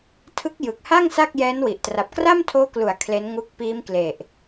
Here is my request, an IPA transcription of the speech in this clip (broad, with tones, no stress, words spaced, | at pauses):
tʰɯ˦˥k̚jɯ˨˩k̚ha˥˩ŋ sa˥˩k̚jɛː˦˥nwi˨˩ʔ tra˨˩p̚kra˥˩mtʰoː˦˥klu˩˦a̯ kʰle˦˥nŋu˦˥k̚ piː˦˥mkle˨˩ʔ